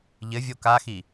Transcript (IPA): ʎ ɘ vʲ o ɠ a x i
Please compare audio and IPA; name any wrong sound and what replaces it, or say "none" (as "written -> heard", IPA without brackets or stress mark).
ɠ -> k